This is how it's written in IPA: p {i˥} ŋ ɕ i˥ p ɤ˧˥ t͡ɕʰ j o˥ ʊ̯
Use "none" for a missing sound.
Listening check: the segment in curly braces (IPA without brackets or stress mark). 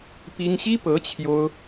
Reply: i˥